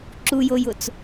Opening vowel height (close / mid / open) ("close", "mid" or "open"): close